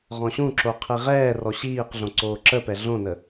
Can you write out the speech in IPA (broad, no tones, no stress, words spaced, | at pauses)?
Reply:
ʁɔ̃ɕũǁo qʰiʁɛːrɔ ɕiːqɮõǀoː ǁəpɛ ɮõnə